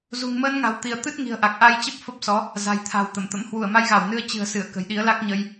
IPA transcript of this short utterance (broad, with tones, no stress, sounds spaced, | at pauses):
z ṳ˨˩ ŋ m əː˧ n ŋ a̤˨˩ w t̪ i˧˩ ə̯ t̪ ɨ˦˥ t̚ ŋ i̤˨˩ ə̯ ʔ a˨˩ k̚ ʔ a˧ j t͡ɕ ə˦˥ p̚ f ə˦˥ p̚ s ɔ˨˦ | z a̤˨˩ j t̪ʰ a̤˨˩ w t̪ ə˧˩ m t̪ ə̰˧˥ m h w u˧˩ ə̯ m a˧ j ɣ a˧˩ w n ɨ˧ ə̯ t͡ɕ ɨ̤˨˩ ə̯ s ɨ˧˩ ə̯ k ə̤˨˩ j ɗ i˨˦ ə̯ l a˦˥ k̚ ɲ ə˧ j